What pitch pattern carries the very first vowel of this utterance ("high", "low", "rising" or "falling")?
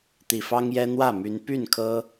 low